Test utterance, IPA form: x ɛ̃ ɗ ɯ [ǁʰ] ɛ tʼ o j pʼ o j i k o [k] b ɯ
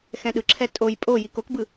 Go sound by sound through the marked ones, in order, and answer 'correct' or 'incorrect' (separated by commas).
correct, correct